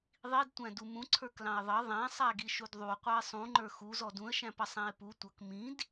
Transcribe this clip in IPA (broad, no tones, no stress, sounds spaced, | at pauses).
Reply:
ðˤ i d tʷ æ̃ d u m ũ ǀʰ ə˞ k l ɑ̃ ɪ̯ ðˤ ʌ ðˤ æ̃ sˤ æ ɡ i ʃ u d ðˤ u qʷ ɑ ɪ̯ sˤ ũ ŋ͡ǃ ə˞ x u z ɔ d ũ ə̯ ʃ æ̃ p ʌ sˤ æ̃ ɪ̯ p u tʷ ʌ k m ĩ d